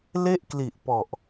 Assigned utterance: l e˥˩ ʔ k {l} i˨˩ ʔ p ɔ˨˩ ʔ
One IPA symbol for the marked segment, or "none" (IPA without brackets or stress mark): l